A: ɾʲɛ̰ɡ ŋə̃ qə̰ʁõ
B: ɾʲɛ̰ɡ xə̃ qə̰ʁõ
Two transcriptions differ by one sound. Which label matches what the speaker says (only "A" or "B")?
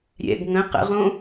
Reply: A